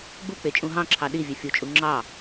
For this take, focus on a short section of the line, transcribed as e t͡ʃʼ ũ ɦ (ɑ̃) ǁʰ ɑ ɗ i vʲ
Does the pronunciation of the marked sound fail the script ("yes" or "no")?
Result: no